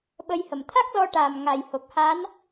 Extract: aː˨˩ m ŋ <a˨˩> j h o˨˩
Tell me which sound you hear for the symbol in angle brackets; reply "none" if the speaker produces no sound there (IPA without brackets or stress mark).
a˨˩